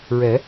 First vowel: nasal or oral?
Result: oral